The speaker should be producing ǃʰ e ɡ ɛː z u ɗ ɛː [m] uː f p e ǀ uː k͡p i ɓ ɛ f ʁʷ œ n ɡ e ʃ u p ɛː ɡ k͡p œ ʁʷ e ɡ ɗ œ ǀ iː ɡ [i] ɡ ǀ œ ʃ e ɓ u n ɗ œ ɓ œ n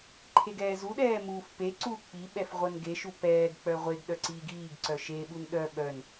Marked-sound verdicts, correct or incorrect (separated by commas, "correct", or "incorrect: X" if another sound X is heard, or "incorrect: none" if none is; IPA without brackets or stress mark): correct, incorrect: iː